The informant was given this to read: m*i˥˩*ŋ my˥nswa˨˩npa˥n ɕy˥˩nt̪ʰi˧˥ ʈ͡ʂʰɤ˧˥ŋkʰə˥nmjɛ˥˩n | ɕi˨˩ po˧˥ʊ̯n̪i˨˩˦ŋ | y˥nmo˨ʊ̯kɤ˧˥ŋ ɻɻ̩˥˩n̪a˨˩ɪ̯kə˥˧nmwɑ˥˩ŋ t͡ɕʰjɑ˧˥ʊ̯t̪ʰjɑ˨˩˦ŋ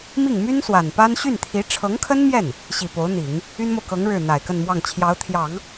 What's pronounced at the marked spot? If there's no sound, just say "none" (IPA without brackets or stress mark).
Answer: i˥˩